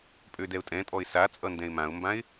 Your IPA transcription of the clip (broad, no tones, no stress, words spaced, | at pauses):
pʼødɛʊ̯tʼɛ̃tʼɔɪ̯ sat͡sʼʌndɛ̃ɪ̯ mãʊ̯mbãɪ̯